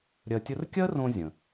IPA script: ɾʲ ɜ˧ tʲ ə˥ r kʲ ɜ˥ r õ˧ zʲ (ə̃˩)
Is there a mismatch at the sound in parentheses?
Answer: no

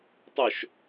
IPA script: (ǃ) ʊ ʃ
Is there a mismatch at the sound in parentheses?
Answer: yes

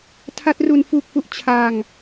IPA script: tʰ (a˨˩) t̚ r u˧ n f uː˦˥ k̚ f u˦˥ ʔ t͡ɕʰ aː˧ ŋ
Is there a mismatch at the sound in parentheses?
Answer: yes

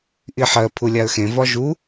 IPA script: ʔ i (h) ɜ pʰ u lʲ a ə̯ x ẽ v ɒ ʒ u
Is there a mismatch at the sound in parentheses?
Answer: yes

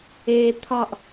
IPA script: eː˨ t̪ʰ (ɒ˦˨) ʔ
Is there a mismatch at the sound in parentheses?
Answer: no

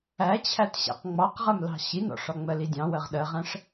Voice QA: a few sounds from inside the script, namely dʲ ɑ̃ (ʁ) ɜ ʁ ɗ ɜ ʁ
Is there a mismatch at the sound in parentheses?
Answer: yes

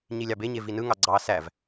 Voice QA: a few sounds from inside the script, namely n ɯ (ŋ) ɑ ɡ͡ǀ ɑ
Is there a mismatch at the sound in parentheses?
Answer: no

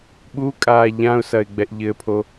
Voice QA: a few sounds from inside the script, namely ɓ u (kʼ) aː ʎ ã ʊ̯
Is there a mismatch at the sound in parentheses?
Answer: no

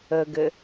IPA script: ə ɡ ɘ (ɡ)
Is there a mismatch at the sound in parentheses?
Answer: yes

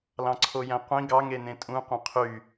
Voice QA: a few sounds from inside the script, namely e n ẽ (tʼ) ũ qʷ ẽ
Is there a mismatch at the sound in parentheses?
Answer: no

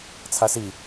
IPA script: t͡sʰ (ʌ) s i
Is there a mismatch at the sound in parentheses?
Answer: yes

